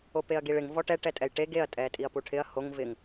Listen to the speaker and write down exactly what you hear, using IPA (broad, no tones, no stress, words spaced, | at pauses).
opeɐ̯ɡiɭɪŋ vɔʈɛ ʈɛtʼɛjʈe ɡeɐ̯ tʼɛtʼiɐ̯puʈʰɪɐ̯ hoŋ vɪŋ